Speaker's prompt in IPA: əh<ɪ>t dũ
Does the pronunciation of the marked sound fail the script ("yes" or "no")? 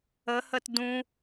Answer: yes